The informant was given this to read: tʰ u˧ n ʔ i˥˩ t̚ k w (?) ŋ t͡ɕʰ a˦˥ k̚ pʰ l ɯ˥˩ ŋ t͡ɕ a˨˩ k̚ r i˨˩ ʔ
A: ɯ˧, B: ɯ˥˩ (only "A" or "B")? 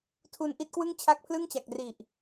B